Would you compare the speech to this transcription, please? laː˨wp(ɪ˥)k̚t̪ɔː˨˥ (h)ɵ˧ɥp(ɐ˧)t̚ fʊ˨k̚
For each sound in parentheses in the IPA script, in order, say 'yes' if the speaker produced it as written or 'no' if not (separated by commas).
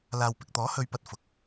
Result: no, yes, yes